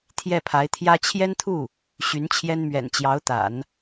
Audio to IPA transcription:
t̪ʰjɛ˥˩pʰa˧˥ɪ̯t̪ʰjä˥ t͡ɕʰjɛ˥nt̪ʰu˥˩ | ɕy˧˥nt͡ɕʰjɛ˥nmɥɛ̰˨˩n t͡ɕjɑ˧˥ʊ̯t̪a̰˨˩˦n

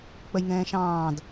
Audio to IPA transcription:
k͡pəjŋɛ̃ː ʃɑ̃ːd

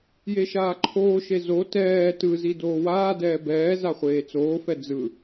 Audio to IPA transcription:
jeʃaːǃʰoːʃe zo tɛː tɯzi doːwaːdɛː bɛːza χʷeːt͡soːfɛ d͡zɯ

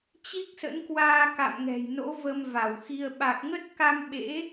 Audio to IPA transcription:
t͡ɕi˦˥k̚sə̰˧˥nkwaː˧ ka̰˧˨mŋɛ̤˨˩jno̰˧˥ və˧mva˧˩wxi˧ə̯ ɓa˨˩k̚ŋə˦˥t̚ka˧m ɓḛ˧˥

